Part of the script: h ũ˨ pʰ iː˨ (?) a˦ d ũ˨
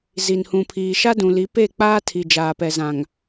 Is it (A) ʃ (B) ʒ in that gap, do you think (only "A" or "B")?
A